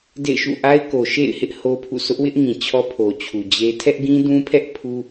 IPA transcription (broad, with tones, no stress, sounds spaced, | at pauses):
d ḛ˦˨ ɪ̯ ʃ ṵ˦˨ ʔ a˦ ɪ̯ k o˨ ʃ ḛ˦˨ ɪ̯ h ɪ˦ ʔ h o˦ pʰ ṵ˦˨ s ʊ˦ ʔ w ɪ˦ ʔ ŋ ĩ˨ t͡ɕʰ ɔ˦ pʰ o˨ t͡ɕʰ u˨ d͡ʑ e˦ tʰ ɛ˦ ʔ ɡ ĩ˦ d ũ˦ pʰ ɛ˦ ʔ pʰ u˦